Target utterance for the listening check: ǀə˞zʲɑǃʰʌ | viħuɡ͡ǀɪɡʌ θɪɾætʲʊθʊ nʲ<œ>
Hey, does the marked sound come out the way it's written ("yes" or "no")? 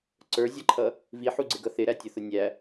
no